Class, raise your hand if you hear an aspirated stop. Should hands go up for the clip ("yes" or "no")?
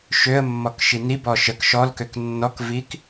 no